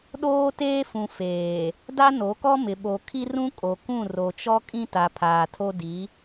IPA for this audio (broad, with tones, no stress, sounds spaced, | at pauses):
ɗ oː˦ t eː˦ f ũ˨ f eː˨ | d a˦ n o˨˦ k ɔ˦ m ɪ˨ ɓ o˨ kʰ i˦ r ũ˦ kʼ o˨ k ũ˦˨ r o˨ t͡ʃ ɔ˦ kʼ ĩ˦ t a˨ pʰ aː˨ tʰ o˦ d i˨˦